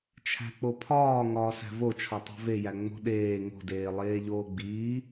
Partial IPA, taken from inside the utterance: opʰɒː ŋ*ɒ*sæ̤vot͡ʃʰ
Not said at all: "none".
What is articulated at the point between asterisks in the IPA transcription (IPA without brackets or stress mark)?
ɒː